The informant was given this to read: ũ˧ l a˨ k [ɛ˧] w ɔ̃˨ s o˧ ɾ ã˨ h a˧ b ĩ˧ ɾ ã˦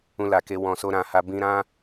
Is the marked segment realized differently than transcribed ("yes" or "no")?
yes